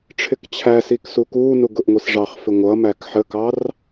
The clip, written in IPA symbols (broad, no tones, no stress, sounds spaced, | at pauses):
ʈ͡ʂʰ ɪ k t͡ɕʰ æ s i k s u k uː n u ɡ ʊ ʔ ŋʷ i s ʐ ɑ χ f ɪ ŋʷ ʌ m æ k ħ ə k ɑ r